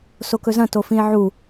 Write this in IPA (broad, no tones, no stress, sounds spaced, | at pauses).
s o k ɵ z ɐ̃ t o f ĩ e̯ ʕ u